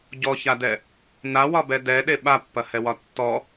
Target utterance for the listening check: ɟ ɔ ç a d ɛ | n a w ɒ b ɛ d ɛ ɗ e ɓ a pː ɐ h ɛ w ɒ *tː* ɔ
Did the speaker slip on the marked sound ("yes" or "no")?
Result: no